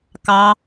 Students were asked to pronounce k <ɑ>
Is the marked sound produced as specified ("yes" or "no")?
yes